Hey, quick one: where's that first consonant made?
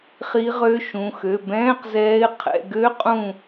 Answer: uvula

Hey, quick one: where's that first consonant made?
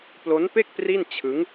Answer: lips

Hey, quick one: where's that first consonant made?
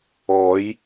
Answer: palate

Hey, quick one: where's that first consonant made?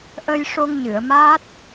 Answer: throat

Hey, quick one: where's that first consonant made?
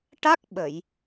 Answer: retroflex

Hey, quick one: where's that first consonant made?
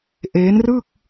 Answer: throat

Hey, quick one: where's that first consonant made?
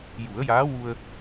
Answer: palate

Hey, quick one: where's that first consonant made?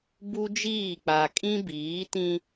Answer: lips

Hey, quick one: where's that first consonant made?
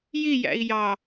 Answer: palate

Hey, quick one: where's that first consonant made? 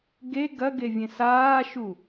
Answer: velum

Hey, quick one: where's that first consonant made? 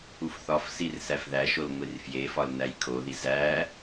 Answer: lips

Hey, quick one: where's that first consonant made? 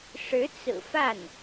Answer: retroflex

